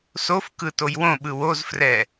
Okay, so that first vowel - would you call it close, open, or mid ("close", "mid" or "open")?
mid